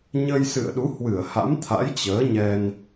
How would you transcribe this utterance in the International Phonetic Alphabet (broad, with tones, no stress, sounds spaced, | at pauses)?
ɲ ə˧ j s ɨ̰˧˨ ə̯ ɗ u˨˦ h w ɨ˧˩ ə̯ h a̰˧˥ m t̪ʰ a̰˧˥ j t͡ɕ əː˨˦ ɲ ɛ˧ n